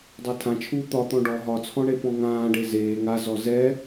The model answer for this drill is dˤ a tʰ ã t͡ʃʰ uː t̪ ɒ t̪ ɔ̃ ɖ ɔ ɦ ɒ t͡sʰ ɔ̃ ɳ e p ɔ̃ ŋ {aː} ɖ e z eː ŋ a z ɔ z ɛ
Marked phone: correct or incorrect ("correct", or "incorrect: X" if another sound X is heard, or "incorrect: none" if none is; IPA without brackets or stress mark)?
incorrect: ãː